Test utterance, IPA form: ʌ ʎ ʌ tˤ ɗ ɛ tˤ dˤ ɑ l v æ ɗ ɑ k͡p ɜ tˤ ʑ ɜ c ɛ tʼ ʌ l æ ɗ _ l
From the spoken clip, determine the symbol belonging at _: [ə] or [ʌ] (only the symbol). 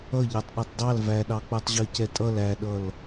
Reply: ʌ